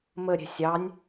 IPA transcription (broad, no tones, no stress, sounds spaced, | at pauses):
m ə ɾʲ ɛ̤ sʲ ɑ nʲ